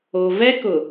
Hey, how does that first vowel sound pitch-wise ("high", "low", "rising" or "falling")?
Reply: low